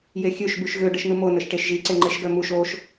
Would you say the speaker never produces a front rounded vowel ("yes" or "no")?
no